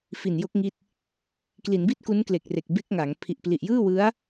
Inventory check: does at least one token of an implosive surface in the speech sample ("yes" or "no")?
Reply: no